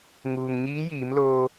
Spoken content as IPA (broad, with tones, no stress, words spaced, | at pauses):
ŋuː˩ŋɲiː˧˥jiː˩˧mloː˧